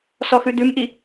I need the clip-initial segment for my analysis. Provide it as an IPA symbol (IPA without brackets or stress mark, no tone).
s